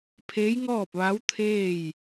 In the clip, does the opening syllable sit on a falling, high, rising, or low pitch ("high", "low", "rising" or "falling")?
rising